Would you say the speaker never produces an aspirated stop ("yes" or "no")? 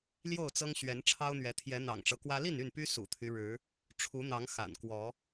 no